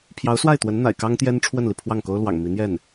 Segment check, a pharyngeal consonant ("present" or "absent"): absent